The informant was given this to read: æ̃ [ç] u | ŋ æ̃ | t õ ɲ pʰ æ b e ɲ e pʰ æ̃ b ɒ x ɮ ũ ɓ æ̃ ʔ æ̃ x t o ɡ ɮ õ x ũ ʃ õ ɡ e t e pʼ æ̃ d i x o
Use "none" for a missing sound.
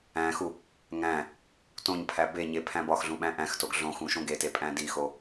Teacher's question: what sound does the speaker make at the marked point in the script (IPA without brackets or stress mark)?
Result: x